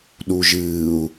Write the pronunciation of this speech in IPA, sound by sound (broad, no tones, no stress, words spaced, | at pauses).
ɗuʒɨːu̯